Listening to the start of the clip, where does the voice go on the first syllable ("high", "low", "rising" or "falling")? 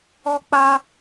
high